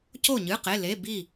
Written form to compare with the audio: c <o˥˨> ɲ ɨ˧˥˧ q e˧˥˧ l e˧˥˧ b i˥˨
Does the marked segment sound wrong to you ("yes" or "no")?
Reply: no